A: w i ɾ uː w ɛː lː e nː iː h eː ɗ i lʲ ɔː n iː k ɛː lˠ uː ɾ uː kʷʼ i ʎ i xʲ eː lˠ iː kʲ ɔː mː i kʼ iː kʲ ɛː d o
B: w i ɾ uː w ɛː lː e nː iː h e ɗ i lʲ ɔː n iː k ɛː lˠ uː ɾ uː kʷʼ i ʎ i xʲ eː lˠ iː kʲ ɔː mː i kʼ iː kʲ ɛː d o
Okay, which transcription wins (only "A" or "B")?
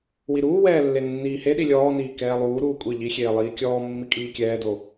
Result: B